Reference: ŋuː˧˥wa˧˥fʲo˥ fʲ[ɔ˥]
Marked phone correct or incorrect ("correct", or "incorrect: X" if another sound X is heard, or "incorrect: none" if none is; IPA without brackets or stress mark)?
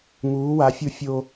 incorrect: o˥